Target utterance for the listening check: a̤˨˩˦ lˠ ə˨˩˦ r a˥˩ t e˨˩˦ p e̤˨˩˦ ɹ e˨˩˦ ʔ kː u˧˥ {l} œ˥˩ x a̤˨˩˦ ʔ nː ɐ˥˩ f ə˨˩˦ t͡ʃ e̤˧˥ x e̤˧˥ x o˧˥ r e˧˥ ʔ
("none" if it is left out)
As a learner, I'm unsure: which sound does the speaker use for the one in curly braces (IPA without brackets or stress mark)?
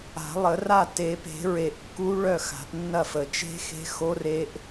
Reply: ɭ